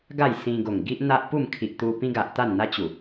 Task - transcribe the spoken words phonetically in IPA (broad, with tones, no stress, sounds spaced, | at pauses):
ɡ a˥˧ j s ĩ˧ ɡ o˨˩ ŋ ɡ i˦ ʔ n̪ a˦ ʔ p u˥˧ m kʰ i˨ ʔ t̪ u˧ p ĩ˦ ɡ a˨ ʔ t̪ a˥˧ n n̪ a˦ t͡ɕ u˨˩